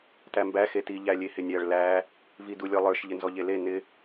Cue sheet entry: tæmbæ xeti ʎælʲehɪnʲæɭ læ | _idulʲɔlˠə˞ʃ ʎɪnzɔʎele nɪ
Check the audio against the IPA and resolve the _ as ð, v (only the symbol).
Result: v